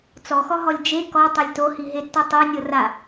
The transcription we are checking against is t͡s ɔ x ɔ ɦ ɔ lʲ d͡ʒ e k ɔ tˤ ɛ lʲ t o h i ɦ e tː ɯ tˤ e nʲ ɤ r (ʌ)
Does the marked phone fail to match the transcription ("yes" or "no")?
yes